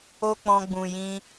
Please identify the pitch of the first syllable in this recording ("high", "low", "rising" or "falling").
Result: high